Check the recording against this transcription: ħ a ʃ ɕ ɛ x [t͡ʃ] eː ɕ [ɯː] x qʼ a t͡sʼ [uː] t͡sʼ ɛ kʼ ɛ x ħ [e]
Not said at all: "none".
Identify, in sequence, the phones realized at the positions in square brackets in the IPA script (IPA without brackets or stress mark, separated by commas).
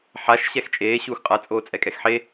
t͡ʃʼ, uː, oː, e